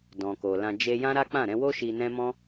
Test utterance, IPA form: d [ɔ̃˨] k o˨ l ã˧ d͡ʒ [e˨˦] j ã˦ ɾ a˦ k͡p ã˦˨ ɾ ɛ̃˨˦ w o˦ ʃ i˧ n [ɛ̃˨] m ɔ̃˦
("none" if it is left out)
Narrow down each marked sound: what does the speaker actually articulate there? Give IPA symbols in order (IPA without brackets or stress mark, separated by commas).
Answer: ɔ̃˨, e˧, ɛ̃˦